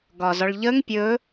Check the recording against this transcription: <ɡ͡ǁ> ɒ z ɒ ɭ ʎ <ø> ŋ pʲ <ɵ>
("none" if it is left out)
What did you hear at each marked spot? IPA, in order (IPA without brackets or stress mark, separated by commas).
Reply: ɡ, ə, ɵ